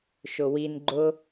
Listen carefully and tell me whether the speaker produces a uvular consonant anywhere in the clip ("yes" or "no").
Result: no